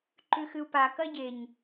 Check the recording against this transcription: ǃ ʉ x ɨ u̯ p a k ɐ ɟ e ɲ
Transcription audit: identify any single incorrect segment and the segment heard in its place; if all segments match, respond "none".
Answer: none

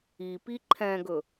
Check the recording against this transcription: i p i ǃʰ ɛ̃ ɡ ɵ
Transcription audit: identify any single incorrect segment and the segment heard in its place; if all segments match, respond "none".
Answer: none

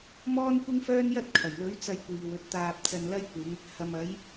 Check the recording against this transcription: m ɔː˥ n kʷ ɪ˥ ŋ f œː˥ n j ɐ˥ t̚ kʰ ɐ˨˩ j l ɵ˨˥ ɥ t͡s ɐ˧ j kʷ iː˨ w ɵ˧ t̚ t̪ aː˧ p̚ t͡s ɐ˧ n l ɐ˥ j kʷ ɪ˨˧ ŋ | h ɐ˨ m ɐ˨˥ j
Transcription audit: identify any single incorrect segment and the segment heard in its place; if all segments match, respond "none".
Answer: none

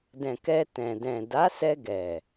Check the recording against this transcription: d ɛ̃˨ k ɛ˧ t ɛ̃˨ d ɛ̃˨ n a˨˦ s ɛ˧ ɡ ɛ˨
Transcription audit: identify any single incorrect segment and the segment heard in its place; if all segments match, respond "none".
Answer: n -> d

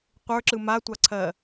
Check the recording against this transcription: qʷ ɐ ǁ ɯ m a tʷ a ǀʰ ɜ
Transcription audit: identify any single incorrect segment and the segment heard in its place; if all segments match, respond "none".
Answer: ɐ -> ə˞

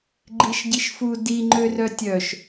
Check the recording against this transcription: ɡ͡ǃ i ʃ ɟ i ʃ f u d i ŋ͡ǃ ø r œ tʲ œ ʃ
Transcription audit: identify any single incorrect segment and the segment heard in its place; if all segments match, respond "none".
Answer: none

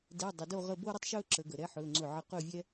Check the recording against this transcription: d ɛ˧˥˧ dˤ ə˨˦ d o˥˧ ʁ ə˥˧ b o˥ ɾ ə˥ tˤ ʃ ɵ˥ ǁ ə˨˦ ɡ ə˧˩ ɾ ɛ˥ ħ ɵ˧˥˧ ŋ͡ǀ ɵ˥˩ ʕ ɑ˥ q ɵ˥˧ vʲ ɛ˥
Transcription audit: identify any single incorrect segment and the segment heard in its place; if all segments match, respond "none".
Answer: ɑ˥ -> ə˥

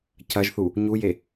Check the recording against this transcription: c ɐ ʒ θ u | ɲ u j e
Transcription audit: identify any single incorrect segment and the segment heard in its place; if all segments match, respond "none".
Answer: none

